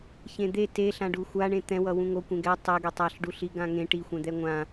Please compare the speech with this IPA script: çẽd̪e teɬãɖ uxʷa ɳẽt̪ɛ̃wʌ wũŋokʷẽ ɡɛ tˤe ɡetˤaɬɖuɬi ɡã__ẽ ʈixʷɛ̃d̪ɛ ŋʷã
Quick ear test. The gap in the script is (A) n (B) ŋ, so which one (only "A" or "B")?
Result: B